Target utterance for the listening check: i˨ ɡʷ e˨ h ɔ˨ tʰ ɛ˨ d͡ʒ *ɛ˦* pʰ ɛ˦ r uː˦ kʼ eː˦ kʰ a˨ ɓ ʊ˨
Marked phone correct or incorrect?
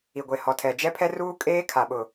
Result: correct